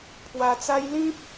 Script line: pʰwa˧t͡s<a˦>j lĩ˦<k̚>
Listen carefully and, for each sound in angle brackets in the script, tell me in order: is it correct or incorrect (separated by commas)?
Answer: correct, incorrect